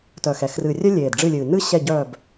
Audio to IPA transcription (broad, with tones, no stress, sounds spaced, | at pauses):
t œː˨˩ x ɛ˨˩ x r ɨ˨˩ rʲ œ˥ lʲ eː˨˩ d ɖ͡ʐ ɨ˦˨ lʲ ɨː˨˩ n ɨ˥ ɕ ɛ˦˨ ɟ œː˦˨ b